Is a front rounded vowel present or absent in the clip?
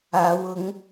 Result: absent